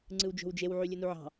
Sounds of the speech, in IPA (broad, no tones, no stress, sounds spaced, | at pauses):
ŋ͡ǀ ɯ w d͡ʒ o̤ w d͡ʒ e w ʕ y lʲ ɯ n u ʕ ɑ̤